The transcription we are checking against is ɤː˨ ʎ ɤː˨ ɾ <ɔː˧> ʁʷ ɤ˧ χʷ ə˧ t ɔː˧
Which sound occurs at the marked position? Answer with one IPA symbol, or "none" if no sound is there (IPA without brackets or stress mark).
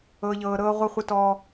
ɤː˧